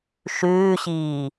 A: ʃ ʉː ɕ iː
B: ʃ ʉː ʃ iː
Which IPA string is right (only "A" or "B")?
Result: A